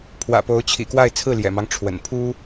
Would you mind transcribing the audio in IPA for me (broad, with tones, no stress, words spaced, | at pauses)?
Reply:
pʰwä̰˨˩po˧˥ʊ̯t͡ɕʰḭ˨˩kwa˥˧ɪ̯ t͡sʰɹ̩˥˩ljɛ̰˨˩mɑ˦ŋ ʈ͡ʂʰwə̰˨˩npʰu˥